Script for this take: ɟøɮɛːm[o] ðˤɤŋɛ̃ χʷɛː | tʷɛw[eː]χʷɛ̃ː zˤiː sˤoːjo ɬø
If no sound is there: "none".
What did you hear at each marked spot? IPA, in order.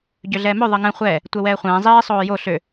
ɵ, ɛː

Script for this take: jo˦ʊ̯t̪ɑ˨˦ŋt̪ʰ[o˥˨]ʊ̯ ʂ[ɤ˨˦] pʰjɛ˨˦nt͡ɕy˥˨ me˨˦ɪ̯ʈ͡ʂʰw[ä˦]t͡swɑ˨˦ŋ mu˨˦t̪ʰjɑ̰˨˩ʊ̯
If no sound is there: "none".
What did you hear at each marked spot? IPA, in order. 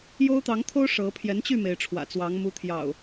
o˦, ɤ˨˦, ä̰˨˩

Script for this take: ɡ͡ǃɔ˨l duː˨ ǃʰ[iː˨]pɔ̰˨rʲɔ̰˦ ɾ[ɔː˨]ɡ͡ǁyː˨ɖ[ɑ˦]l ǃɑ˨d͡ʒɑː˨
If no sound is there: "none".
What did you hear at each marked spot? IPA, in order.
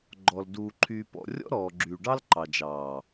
yː˨, ɔː˨, ɑ˦

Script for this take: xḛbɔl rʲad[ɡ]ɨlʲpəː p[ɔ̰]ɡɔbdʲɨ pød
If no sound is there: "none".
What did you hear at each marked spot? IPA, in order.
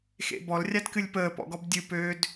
k, ɔ̰

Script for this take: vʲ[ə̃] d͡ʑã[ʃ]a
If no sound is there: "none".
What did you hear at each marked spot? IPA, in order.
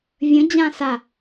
ə̃, s

